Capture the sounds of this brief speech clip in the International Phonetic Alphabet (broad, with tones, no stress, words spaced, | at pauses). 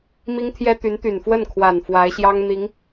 mi˥ŋt̪ʰjɛ˥t̪y˧˥n t̪y˨˩nfwə˥˩nkʰwa˨˩n fwa˧˥ɪ̯ɕjɑ˥ŋn̪i˧˥ŋ